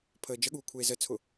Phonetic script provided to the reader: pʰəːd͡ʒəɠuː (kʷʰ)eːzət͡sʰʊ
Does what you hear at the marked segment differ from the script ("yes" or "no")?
no